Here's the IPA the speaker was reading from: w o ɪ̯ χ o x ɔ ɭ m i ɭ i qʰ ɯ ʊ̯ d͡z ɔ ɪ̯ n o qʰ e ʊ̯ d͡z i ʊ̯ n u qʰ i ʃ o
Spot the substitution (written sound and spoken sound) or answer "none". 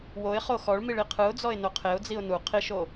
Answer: none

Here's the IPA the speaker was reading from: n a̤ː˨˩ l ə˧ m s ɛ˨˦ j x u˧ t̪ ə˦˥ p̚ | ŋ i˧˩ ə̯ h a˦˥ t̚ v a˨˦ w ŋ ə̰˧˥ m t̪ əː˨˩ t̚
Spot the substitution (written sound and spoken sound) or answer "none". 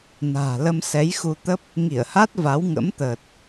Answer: none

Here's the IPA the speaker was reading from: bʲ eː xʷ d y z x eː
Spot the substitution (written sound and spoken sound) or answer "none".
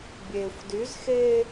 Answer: none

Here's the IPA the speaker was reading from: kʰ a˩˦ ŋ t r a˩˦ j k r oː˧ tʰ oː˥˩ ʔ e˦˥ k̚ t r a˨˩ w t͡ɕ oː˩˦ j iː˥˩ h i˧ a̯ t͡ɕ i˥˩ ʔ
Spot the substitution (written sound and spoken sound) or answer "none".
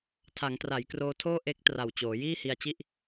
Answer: kʰ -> tʰ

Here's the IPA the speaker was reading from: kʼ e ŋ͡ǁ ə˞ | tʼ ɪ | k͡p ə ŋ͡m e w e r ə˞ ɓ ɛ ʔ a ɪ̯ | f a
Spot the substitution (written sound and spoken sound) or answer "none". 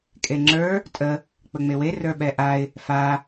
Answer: ɪ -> ə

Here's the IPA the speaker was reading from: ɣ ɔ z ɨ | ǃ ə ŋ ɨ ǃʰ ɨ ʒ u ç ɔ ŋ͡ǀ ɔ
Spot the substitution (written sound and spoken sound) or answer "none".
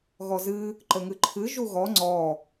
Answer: ç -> ɣ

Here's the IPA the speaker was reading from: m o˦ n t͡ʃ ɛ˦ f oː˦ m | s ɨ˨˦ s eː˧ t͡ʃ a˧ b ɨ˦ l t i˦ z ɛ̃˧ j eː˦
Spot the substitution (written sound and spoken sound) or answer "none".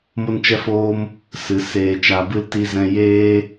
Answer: none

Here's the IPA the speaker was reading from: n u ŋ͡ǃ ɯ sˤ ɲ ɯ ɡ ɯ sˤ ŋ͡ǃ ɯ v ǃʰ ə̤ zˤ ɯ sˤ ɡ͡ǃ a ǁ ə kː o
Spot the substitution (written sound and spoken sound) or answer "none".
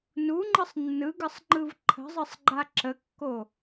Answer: ɲ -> nː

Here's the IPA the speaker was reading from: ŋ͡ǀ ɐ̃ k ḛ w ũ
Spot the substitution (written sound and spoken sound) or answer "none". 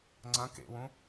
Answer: none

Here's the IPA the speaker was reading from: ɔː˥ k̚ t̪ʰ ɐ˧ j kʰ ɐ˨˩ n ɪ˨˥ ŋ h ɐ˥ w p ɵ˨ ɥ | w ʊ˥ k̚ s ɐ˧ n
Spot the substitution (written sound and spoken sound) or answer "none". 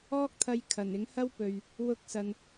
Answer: none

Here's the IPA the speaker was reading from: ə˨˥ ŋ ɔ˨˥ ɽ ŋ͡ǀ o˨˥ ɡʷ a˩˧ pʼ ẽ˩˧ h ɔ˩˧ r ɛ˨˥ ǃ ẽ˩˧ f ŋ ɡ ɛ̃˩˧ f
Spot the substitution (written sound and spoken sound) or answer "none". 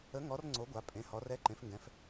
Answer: ɽ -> r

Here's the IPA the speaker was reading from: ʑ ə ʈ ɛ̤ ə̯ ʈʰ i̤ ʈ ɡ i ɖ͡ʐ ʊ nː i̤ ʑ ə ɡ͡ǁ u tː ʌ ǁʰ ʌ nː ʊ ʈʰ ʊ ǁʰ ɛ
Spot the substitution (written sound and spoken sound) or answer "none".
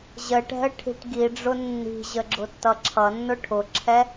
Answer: u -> ʊ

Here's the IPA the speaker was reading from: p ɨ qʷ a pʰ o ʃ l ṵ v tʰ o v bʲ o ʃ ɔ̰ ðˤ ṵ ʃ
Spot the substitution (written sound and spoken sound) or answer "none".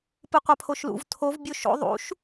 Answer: ɔ̰ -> o̰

